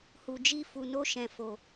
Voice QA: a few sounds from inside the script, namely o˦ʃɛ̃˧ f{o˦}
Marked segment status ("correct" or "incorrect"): incorrect